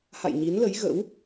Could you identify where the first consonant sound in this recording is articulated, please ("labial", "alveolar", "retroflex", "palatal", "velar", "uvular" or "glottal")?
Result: glottal